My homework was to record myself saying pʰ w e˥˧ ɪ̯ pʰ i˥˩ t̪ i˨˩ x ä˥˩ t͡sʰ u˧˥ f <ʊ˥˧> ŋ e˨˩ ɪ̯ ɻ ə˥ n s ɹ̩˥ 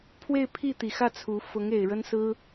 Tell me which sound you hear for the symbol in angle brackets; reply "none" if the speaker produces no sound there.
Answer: ʊ˧˥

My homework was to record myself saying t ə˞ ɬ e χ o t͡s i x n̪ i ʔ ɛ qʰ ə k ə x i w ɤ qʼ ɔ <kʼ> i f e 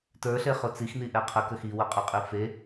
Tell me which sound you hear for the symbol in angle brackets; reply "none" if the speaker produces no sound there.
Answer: qʼ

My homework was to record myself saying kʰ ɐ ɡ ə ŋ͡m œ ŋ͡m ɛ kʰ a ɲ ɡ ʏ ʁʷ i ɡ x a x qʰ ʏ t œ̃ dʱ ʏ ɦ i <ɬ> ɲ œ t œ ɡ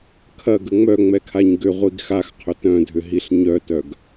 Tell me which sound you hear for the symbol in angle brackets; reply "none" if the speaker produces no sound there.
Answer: ɬ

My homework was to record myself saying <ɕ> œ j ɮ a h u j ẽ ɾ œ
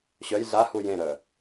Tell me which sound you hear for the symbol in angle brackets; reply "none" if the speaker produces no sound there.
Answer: ɕ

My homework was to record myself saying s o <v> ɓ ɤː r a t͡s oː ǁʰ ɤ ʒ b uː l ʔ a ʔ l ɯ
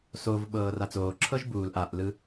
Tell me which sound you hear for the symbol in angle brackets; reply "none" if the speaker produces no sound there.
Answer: v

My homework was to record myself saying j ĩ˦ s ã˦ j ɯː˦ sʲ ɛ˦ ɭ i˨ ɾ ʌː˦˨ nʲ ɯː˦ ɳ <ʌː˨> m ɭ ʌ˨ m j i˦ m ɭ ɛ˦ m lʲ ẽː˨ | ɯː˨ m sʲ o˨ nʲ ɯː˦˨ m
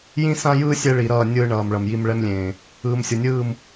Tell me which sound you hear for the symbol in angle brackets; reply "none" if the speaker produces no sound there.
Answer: ʌː˨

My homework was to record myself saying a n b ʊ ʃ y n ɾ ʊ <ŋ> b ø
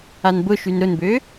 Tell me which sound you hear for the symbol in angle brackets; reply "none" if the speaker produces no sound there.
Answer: n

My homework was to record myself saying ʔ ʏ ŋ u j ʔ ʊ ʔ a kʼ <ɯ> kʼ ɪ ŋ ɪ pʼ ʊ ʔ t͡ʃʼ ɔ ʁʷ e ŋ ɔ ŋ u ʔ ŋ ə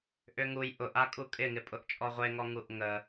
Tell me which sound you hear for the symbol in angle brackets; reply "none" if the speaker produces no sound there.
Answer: u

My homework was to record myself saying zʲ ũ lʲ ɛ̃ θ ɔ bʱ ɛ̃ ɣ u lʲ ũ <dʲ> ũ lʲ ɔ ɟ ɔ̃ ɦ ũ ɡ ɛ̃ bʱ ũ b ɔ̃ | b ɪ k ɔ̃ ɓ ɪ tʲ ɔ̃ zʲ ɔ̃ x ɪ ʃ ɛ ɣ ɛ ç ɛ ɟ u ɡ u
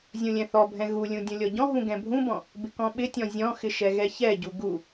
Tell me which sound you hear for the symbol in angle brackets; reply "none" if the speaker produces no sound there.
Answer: dʲ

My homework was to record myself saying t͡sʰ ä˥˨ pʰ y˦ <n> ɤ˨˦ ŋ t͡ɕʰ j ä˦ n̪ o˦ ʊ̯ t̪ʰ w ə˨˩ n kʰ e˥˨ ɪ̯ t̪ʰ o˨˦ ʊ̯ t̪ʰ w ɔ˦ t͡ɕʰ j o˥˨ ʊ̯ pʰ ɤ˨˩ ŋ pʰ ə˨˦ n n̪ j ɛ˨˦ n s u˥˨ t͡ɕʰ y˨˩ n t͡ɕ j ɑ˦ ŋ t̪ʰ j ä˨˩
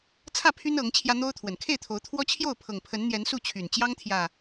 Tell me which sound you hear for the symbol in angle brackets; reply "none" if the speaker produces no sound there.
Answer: n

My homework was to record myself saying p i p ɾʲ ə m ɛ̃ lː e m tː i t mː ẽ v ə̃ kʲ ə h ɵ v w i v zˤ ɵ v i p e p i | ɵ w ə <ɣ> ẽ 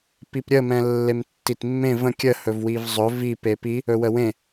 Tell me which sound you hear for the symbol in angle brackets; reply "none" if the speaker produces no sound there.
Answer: w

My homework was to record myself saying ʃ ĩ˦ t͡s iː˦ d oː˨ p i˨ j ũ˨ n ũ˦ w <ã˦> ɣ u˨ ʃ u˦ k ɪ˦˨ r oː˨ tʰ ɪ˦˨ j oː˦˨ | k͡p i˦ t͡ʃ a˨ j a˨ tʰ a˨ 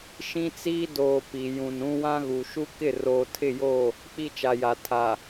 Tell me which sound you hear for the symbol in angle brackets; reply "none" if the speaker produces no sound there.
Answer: ã˦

